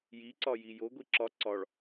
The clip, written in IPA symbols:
jiǀɒ jijoɡʷi ǁɒ ǀɒɭ

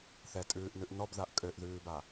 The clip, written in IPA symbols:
θɛtʼʉːʔnʉʔ nɔbðaʔ kʼøʔðʉːba

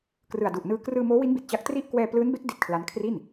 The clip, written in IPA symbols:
krɯ˨˩a̯du˨˩ʔnɯː˧ krɯː˧moː˦˥wi˦˥nbi˨˩t̚ t͡ɕa˦˥k̚tri˥˩ʔ kwɛː˧plɯː˦˥nbe˦˥k̚ di˦˥t̚kʰla˦˥n kʰri˥˩n

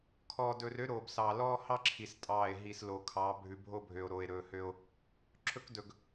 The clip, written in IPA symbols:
kʰɔː˨dɵ˨r ø˦ɾoː˨bsɑː˨ lɔː˦hɑ˦ǁʰi˨s tʼɑː˦˨e̯ ɦi˨sloː˨kʰɑː˨˦ bʱʉ˨bʱo˦bʱø˨o̯ ɾoː˨e̯ɾɵː˨hø˦o̯ | ǁʰɵ˦kdɵ˨ɡ

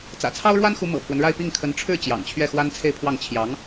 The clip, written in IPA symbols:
t͡sä̰˨˩t͡sʰɑ˥ʊ̯ɻwa˥nxu˧˥ mɤ̰˨˩pʰwə˦nɻa˥˧ɪ̯ pi˥˩ŋkʰə˧˥n ʈ͡ʂʰɻ̩˥˩ t͡ɕjɑ̰˨˩ŋt͡ɕʰɥɛ˥˩ xwa˥nt͡sʰe˥˧ɪ̯pʰwɑ˥˩ŋ t͡ɕʰjɑ˧˥ŋ

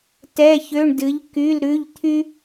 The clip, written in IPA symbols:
tɛ˧˥˧çø˧˥˧ɳdɨ˨˥ʎ ky˧˥˧lɾʉ˧˥˧ʎ t̪ʰy˥

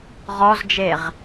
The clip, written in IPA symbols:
ʁɔzd͡ʒeʁ

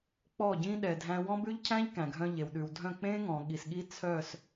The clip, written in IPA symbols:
k͡pɔ˦˨ɟĩ˦ ɗɛ˨dʱæ̃˦ wɔ̃˦bʉ˦ʎcʰæ̃˦ʎ kæ̃˨ɡʱœ̃˦ʎe˨w ɗʉ˨wdʱœ̃˦˨ k͡pẽ˦ŋɔ̃˨ ɠi˨sɠi˦ t͡sʰœ˦˨s

